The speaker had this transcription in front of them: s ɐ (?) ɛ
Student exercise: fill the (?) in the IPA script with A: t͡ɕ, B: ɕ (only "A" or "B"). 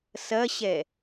B